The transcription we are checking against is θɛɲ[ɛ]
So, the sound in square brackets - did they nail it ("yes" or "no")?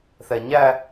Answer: no